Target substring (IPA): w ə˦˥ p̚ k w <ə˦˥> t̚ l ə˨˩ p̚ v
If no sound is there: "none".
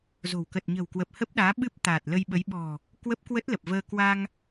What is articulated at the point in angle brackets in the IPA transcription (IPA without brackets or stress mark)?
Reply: ə˦˥